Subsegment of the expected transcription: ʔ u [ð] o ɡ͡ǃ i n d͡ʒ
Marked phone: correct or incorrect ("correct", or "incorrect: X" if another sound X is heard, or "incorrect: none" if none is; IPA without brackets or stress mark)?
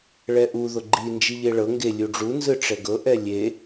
correct